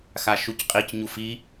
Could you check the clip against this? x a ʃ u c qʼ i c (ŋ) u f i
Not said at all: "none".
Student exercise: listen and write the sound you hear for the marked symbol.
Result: ɲ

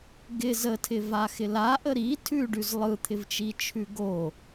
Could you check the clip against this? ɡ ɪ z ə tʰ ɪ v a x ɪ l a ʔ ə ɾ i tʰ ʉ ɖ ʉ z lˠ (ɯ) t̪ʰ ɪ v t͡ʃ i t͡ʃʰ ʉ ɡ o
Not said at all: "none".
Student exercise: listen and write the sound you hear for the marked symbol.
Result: ɯ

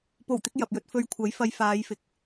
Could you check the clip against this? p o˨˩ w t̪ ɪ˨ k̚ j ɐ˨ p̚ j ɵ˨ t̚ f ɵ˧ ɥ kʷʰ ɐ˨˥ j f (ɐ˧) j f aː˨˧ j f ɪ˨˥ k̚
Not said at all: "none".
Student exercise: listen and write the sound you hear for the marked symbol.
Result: ɐ˧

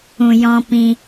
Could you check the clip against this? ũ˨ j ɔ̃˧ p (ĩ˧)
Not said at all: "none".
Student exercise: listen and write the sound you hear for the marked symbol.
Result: ĩ˧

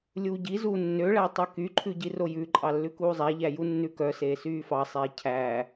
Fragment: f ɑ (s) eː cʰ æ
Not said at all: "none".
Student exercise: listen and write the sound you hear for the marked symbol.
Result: sˤ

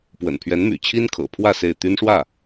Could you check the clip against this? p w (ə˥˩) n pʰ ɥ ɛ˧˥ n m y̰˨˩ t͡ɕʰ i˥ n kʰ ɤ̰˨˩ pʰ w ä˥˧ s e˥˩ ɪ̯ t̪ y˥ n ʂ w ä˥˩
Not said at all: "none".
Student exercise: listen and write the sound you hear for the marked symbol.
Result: ə̰˨˩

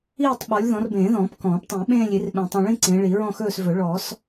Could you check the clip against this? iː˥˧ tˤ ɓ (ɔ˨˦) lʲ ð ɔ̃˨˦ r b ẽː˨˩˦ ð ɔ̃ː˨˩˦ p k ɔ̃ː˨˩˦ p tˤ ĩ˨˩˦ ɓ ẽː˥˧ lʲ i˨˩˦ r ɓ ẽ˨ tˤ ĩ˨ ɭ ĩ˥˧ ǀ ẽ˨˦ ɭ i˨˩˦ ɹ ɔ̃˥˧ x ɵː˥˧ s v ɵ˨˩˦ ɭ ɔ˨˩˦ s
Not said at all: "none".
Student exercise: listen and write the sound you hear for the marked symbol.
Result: ɔ˨˦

